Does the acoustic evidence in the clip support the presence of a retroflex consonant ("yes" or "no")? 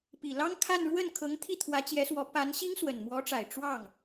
yes